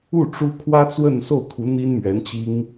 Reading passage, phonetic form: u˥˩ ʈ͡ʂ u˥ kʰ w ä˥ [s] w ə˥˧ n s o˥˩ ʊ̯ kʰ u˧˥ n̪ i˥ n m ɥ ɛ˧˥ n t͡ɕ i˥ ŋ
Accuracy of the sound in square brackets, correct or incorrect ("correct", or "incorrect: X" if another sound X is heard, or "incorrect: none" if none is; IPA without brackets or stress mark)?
incorrect: t͡s